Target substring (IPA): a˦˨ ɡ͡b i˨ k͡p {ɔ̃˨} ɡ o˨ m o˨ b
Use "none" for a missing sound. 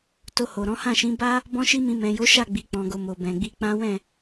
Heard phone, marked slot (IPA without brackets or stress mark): ɔ̃˨